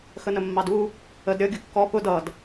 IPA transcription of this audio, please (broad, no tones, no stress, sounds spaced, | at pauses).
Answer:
x ə n ə mː ɑ d u | ə d ɾʲ ʌ ɡʲ ʊ kː ɔ p ʊ d ʌ d